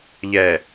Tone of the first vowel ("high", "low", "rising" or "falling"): low